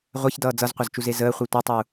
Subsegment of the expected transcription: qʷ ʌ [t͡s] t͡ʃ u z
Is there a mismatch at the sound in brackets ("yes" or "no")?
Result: yes